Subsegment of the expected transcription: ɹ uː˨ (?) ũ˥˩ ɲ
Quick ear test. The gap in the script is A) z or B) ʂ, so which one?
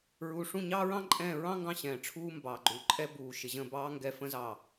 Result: B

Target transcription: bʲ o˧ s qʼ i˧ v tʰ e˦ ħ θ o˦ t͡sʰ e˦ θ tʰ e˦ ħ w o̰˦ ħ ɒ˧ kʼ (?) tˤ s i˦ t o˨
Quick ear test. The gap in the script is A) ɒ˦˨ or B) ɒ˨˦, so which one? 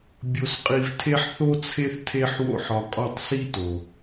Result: A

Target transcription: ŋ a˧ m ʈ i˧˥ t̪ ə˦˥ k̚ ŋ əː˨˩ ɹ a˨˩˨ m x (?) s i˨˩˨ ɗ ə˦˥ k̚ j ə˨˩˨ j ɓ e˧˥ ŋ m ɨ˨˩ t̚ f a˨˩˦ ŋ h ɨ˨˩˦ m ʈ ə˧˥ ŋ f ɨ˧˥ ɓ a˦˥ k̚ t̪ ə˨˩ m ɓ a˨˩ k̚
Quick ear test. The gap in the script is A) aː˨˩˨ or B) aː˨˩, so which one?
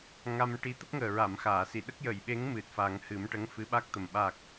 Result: A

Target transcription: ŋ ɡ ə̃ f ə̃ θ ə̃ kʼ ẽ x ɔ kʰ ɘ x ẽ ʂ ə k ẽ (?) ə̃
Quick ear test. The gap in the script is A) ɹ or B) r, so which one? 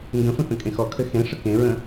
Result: A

